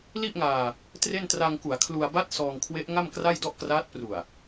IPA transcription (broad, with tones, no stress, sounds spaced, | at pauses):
l i˥˩ ʔ ŋ aː˧ | t r e˥˩ n t r a˧ ŋ k u˩˦ a̯ kʰ l u˧ a̯ b a˥˩ t̚ s ɔː˧ ŋ kʰ w e˦˥ ʔ ŋ a˥˩ m k r a˥˩ j d ɔ˥˩ ʔ k r aː˦˥ t̚ p r u˨˩ a̯